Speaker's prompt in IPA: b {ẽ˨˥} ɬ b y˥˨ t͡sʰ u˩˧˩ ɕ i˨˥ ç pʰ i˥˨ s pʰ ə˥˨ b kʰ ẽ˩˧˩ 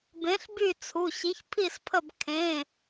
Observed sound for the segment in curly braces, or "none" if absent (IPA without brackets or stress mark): ẽ˨˥